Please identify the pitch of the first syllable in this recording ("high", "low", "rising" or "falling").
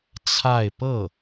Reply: falling